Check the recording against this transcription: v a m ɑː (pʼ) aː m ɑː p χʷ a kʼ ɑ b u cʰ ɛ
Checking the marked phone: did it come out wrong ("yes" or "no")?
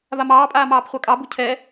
no